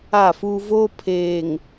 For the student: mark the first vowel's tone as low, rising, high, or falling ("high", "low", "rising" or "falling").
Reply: falling